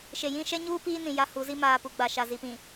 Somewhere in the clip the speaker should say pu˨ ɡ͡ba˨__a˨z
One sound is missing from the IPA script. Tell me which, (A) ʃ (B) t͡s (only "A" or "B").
A